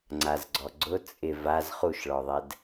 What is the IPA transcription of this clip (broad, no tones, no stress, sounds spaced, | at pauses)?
ŋ͡ǀ a z ɡ͡ǀ ɔ ɡ͡ǀ ʊ t͡sʼ ɪ v a z χ u ʃ ɭ ɔ ðˤ ɛ d